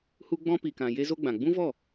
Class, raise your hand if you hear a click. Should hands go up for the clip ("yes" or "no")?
no